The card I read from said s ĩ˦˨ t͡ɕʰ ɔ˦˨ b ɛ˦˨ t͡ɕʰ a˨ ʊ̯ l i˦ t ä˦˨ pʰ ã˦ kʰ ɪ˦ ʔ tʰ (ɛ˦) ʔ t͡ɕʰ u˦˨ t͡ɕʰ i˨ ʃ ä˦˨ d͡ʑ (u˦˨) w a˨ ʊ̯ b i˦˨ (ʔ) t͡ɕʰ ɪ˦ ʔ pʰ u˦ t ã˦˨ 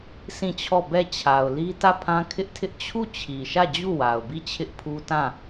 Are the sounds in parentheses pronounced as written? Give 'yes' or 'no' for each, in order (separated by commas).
no, yes, no